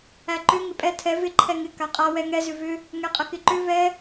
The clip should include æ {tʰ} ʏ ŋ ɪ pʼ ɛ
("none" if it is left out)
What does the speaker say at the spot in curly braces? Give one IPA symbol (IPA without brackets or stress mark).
ǃ